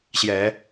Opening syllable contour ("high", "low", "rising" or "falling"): low